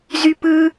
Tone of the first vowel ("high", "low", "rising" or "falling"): high